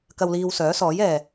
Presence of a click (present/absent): absent